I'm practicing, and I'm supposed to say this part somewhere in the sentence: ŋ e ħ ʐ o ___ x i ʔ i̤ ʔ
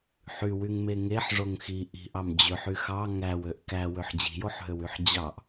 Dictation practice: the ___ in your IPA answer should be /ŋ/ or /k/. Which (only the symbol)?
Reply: ŋ